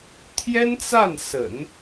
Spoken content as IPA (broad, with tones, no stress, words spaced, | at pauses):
t̪ʰjɛ˥nt͡sa˥˩n sə̰˨˩˦n